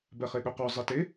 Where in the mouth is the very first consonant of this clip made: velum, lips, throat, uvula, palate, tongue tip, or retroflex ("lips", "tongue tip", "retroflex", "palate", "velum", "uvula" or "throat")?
lips